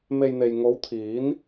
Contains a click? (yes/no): no